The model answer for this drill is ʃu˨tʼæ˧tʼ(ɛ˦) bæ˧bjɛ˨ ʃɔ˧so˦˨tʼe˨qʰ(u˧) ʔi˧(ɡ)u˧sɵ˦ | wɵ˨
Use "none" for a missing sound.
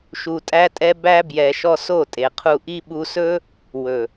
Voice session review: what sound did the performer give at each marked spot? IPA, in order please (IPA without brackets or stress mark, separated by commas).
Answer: ɛ˧, u˧, ɓ